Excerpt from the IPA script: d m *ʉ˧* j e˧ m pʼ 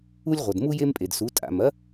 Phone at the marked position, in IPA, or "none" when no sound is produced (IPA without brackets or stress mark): u˧